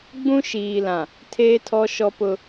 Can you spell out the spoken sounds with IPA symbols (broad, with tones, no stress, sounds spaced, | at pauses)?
ɡ͡b ũ˦ ʃ iː˨ l ã˨ | tʰ eː˦ tʰ ɔ˦ ʃ ɔ˦ p ʊ˦